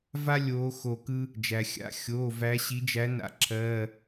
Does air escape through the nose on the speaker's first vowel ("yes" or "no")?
no